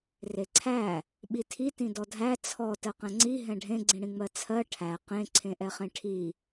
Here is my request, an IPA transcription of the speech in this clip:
r e ǀʰ æ | ɓ i tʰ i t ĩ d ɔ dʱ æ t͡sʰ ɔ t ɜ q ɛ̃ ŋ͡ǀ i ɦ ɛ̃ ɖʱ ẽ ɡ͡ǀ ĩ ɽ ĩ ŋ͡m ɜ t͡sʰ ɜ ʈʰ æ q ẽ ǀʰ ẽ ʔ ɛ χ ẽ ʈʰ i

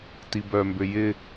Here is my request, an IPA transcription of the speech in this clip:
t i b œ m b ʏ j ɪ

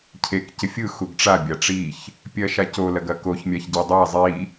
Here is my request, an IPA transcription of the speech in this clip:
cʰ e k c ɪ fʲ ɯ x u ɡ ʈ͡ʂ a bʲ a ʈ͡ʂ i ç | pʲ ɜ ʃ a c o l ɐ ɡ ɐ k o ç mʲ a ç ɟ e dˤ a zˤ i

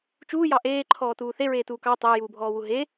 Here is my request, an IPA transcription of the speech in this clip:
t͡ʃ uː j ɑ ʔ eː ǃʰ ɔː t uː θ e ɹ eː t uː k ɑ tˤ əː j uː bʱ ɔː w u ɦ e

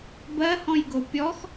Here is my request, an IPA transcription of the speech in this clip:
b ɜ h ɔ̃ j ɡ o pʲ ɔ x

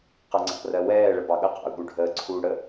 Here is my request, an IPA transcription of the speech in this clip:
q ʌ ŋ͡ǀ ɑ̰ r ɜ w ɛː ɭ ə b ɑ ɠ ə q ɑ̰ ʊ̯ ɠ u ɖʱ əː ǀʰ uː ɽ ə

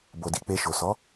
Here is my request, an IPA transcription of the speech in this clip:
b o˨ d i˨˦ k͡p e˧ ʃ o˨ s ɔ˨˦

